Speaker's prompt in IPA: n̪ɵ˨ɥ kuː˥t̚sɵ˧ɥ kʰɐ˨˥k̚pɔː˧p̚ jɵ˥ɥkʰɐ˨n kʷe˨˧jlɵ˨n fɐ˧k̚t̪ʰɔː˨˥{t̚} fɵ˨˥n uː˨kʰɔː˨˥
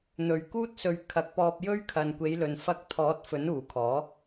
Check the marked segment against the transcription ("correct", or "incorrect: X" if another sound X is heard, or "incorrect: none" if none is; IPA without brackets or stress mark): correct